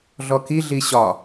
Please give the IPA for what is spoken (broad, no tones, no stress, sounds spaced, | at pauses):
ɮ ɔ k i ɮ i ɕ ɒ